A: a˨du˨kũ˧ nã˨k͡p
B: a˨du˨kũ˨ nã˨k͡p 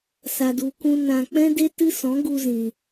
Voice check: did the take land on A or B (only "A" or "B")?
A